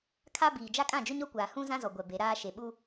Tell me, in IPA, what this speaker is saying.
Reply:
kʰa˦ biː˨d͡ʒa˦ kʼã˦˨d͡ʒʊ˦ɲɔ˦kʷaː˨ hũ˦ zã˦zɔ˨ ɡʷɛ˨ be˨˦ɾaː˦ ʃe˨ɓu˦

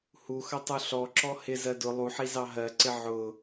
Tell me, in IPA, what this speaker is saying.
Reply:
huxʌtˤu ɬɔǁɔ hɪzɜ dʊ lˠuħizɑ ɦɜǀɪ ʕʊ

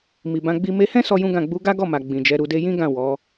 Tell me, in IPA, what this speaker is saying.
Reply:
mi˨bã˧ɡ͡bi˦ me˧hɛ̃˦ sɔ˦jũ˦ɡã˦˨ ɡ͡bu˨˦ɡa˦ɡɔ˦˨ma˨ ɡ͡bĩ˨d͡ʒɛ˨˦ ɾu˧de˦ jĩ˦ɡã˦˨ wɔ˨˦

